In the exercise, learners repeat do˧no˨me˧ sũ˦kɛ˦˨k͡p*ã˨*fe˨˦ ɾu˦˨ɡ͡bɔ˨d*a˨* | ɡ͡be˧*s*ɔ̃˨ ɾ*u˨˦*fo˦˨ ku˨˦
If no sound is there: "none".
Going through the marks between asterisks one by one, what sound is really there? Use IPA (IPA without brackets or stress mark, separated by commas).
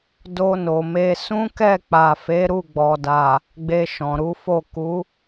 a˨, a˨, ʃ, u˨˦